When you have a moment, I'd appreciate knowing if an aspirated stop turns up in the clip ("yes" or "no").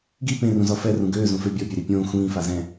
no